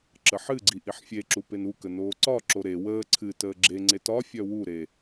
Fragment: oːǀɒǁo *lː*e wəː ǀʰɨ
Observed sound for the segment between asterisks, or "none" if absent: ɾ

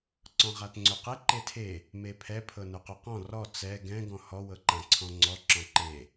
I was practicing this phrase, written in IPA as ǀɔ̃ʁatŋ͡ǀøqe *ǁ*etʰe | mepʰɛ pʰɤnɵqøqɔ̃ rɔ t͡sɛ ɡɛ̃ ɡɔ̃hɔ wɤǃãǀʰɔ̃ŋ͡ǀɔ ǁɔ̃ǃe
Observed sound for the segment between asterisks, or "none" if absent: ǃ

